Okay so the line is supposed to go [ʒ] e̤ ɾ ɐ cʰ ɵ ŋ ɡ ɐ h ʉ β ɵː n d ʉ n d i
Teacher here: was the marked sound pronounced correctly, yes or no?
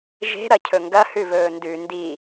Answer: yes